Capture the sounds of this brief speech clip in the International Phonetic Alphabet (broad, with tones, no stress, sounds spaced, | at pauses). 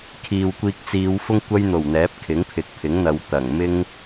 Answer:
kʰ iː˨ w kʷ iː˧ k̚ t͡s iː˨˧ w f ʊ˥ ŋ kʷ ɐ˥ j n̪ o˨˩ w n̪ ɛː˨˥ p̚ kʰ ɪ˨˥ ŋ pʰ ɪ˨ k̚ pʰ ɪ˨˥ ŋ n̪ ɐ˨˧ w t̪ ɐ˨˩ ŋ m ɪ˥ ŋ